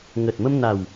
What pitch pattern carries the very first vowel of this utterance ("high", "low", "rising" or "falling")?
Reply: low